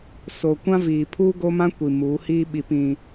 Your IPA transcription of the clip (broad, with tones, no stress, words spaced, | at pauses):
so˨kʷã˦viː˨ pʰuː˦ɡo˦mã˦ kʷi˨muː˨˦hiː˦ ɓi˨pĩ˨